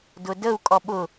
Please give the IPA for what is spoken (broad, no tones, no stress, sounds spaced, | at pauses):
d ʊ d ə u̯ kʼ ɔ ɓ ʊ